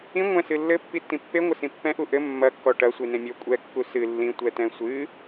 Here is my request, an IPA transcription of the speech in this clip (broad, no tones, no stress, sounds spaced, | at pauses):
ĩ ŋʷ ɛ̃ s ɨ lː ɘ pː i tː ĩ pː e ŋʷ ɘ s ĩ pː ɛ̃ ʔ u ʔ ɘ mː ɐ kː ɔ ʈ ɐ sʷ i n ẽ mʲ ɔ kʷʼ ɛ kː u s ɨ lː ĩ tʷ ɛ t ɛ̃ sʷ ɨ